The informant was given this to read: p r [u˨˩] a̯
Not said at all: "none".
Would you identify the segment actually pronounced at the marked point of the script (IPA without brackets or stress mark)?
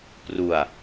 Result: u˨˩